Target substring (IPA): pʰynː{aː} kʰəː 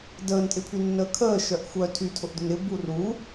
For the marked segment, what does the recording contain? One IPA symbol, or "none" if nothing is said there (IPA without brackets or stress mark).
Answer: əː